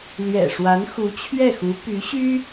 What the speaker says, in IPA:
l ɥ ɛ̰˨˩ ʂ w a˧˥ n x u˧˥ t͡ɕʰ ɥ ɛ˥˩ x u˧˥ p y˧˥ ɕ y˥

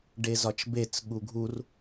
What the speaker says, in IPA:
ɖ e z ɒ t͡ʃ b e t͡s ɠ u ɡʱ u r

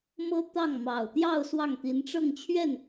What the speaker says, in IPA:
m ɤ˥ t̪ ɑ˥˩ ŋ m ɑ˨˩ ʊ̯ t̪ j ɑ˥˧ ʊ̯ s w ɑ˥˩ ŋ t̪ i˧˥ n ʈ͡ʂ ɤ˥˧ ŋ t͡ɕʰ ɥ ɛ˥˩ n

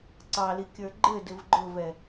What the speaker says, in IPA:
ǀ ɑ l i kʲ ə˞ ɡ͡ǃ ɘ d ɘ v ɡ͡ǃ ʊ v ɛ

